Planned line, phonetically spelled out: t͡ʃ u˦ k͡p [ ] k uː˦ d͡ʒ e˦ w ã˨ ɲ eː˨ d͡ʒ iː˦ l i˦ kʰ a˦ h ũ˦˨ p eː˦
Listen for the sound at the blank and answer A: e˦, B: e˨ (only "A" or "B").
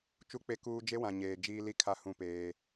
A